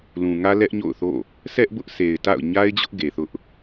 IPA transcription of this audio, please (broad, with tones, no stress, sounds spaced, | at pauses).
l ũ˨ ŋ ä˦ l ɛ˦ ʔ ɲ o̰˦˨ ʊ̯ θ o̰˦˨ | s ɛ˦ ʔ b ʊ˦ ʔ sʰ e˨ ɪ̯ t a̰˦˨ ʊ̯ ɲ a˦ ɪ̯ d͡ʑ ʊ˦ ʔ ɡ e˨ θ ʊ˦ ʔ